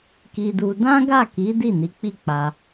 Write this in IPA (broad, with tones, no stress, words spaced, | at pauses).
ki˧du˧ dã˦ɡa˦˨ki˨˦ di˦˨ni˨˦k͡pi˦˨k͡pa˧